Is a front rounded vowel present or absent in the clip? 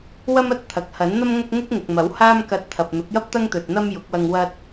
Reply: absent